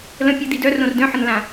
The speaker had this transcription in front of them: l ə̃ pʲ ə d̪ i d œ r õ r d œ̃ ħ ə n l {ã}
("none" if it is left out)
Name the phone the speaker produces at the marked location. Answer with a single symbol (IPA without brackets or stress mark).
ã